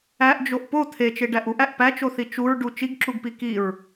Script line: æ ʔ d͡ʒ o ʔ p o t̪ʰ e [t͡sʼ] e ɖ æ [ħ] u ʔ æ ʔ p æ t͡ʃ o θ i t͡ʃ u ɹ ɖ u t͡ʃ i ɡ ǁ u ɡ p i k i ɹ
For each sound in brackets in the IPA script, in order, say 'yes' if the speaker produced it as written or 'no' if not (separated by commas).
no, no